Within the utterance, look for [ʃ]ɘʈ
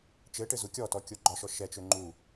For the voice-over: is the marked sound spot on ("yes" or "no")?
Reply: no